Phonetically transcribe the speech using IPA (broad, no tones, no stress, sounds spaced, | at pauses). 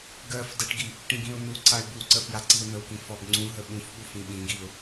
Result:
ɡ ɜ f d ə ʈ ɡ i | ʈ ĩ ɡ ĩ ʊ̯ n u ǀ a ɪ̯ b u ǀ ə f j a ǀ i ʊ̯ n̪ ə w k ĩ f ɔ b ŋ͡ǀ ũ ɦ ə ɓ ũ f ɓ u f ĩ ɓ ĩ ɡ i ʊ̯